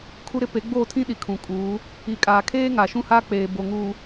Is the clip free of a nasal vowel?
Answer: no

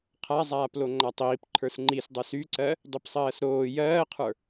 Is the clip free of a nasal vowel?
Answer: yes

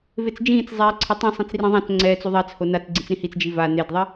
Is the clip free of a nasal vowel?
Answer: no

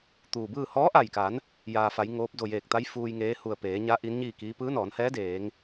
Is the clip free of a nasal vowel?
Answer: yes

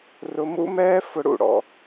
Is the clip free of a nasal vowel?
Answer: yes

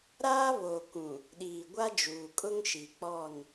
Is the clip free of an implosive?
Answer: no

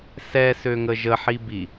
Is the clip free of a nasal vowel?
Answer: yes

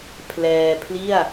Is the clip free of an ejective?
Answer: yes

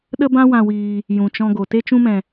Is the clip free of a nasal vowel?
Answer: no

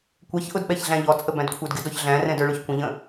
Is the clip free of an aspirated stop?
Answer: no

